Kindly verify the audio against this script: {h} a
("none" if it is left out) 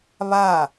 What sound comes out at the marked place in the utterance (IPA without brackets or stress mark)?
β